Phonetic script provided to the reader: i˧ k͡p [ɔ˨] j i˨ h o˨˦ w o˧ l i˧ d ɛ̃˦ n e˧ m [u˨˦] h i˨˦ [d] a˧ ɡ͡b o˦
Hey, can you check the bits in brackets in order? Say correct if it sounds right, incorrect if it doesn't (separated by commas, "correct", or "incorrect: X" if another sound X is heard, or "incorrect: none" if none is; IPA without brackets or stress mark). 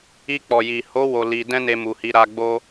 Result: correct, incorrect: u˨, incorrect: ɾ